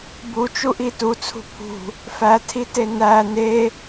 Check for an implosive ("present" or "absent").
absent